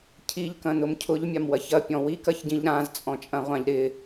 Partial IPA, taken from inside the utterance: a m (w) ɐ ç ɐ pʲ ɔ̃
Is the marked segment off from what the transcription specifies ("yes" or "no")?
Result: no